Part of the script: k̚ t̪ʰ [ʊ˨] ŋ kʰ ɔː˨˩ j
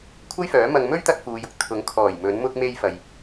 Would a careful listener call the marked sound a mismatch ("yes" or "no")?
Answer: yes